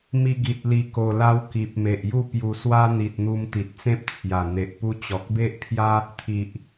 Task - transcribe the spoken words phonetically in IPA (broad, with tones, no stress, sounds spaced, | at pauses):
m i˧ ɡ i˨ t̚ l i˧ k o˧ l a˦ w k i˨ p̚ m e˨ ʔ j u˥˧ p j u˧ s w a˦ n̪ i˨ t̚ n̪ u˧ m t̪ i˨ t̚ t͡s ẽ˦ p̚ t͡sʰ j a˨˩ n̪ e˨ ʔ p u˦ t͡ɕ ɔ˨ k̚ b e˦ ʔ pʰ j a˦ | t̪ʰ i˨ ʔ